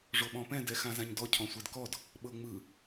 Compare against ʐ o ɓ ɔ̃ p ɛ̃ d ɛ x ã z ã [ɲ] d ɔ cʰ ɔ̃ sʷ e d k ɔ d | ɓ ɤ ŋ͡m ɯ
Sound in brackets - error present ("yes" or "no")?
no